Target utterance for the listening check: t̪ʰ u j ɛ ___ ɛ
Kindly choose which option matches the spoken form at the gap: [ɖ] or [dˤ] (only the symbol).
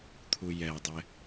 dˤ